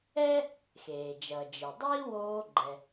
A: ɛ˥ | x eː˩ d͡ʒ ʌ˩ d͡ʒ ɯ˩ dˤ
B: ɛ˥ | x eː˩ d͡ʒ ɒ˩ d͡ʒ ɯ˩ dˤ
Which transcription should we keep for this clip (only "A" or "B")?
A